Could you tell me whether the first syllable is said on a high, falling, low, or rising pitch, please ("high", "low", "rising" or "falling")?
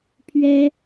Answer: high